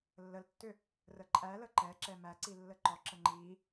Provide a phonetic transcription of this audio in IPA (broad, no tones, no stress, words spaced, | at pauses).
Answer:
lːəltːʏ | rəǃʼælə ǃɛǁɛ mæǀi lːəǃɔǁə ŋ͡ǃi